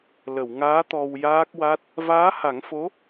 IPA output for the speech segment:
l ə˨˩˨ w ŋ aː˧˥ t̪ ɔ˧ w j aː˦˥ k̚ w a˦˥ t̚ | v aː˧˥ h a˨˩˦ ŋ f o˧˥

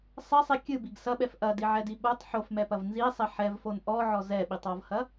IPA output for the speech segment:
sˤ ɛ sˤ i kʲ ɨ b i ɡ s ɐ ɓ ɛ f ʔ ɐ d i ʕ ɛ d i ɓ o tˤ ħ o f m ɛ p ɐ v n z i sˤ ɛ ħ ɛ v f o n ʔ ɔ ʕ ɔ z ɛ ɓ i tˤ ɔ v h ɐ

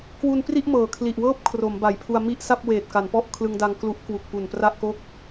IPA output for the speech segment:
k w u˧ n p r i˥˩ ʔ m ɤː˨˩ kʰ l i˨˩ ʔ w ɤː˥˩ p̚ kʰ r o˩˦ m b a˩˦ j pʰ u˧ a̯ m i˥˩ ʔ s a˥˩ p̚ w eː˨˩ t̚ k a˩˦ n p ɔ˥˩ ʔ kʰ l ɯ˧ ŋ d a˧ ŋ k l u˦˥ ʔ k w u˨˩ k̚ p u˨˩ n p r a˥˩ ʔ k o˥˩ k̚

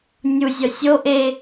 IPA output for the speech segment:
nʲ u zʲ ɒ sʲ o ʔ e

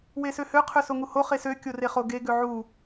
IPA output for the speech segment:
w e s ø h ø qʰ ø s o ŋ u h o χ e s ø kʲ o r e χ o ɡ e ɡ ø ʕ u

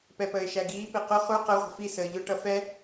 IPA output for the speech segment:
p ɛ p əː ɪ̯ ʃ æ ɡ iː p i q ʊ χ u q ə ʁʷ ə̤ f i s əː ʎ ʊ ʈ ʌ f ɛ

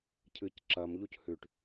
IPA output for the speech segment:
cʰ ɨ c ǁ ɐ m ʎ u c h ʉ ʈ

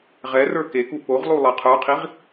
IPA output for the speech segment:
ʁ ɛ r ə˞ k e k u p o ʁ lˠ u lˠ ɜ qʰ ə˞ qʰ i ʁ

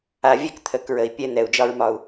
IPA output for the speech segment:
a˨ vʲ ɛ˦ k t̪ʰ ə˨˦ k ɹ ə˨ i̯ pʲ ɛ˦ n̪ ɛ˨ u̯ d͡ʒ ɒ˦ ɹ m ɒ˦ u̯

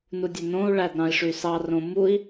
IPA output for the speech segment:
n u dʲ e n õ u̯ ɭ æ d ɾ ɑ̃ i̯ ʂ y s ɑ r õ m u i̯

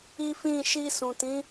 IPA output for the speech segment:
i˦ f ĩ˦˨ ʃ i˧ s ũ˨ t ĩ˨˦

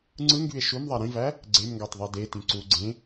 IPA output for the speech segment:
ŋ͡ǀ ɯ ŋ ɡ y e̯ ʃ u m ðˤ æ ɾ ĩ v æ | ɡ͡ǀ e m ŋ ɡ ɑ t ðˤ i d e t ĩ ǀ u ɡ͡ǀ ẽ

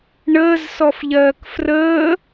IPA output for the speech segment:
ɳ əː z s ɔ f ʎ ɜː k f r əː

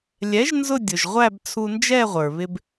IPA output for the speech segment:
lʲ ɛ˨˥ ʒ n z ʊ˥˧ dʲ ʊ˩ ʒ ʁʷ æ˥˧ b t͡sʰ u˧ n d͡ʒ ɛ˥˧ ʁʷ ə˞˩ β ɪ˧ b

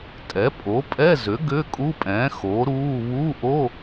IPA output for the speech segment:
tʼ ɛ˩˥ pʼ o˩˥ pʼ ɛ˧˥˧ z ʏ˩˥ ɡ ʏː˧˥˧ kʼ u˧˥˧ pʼ ɛ̃ː˩˥ x o˩˥ ɾ uː˧˥˧ β u˧˥˧ ʔ o˧˥˧

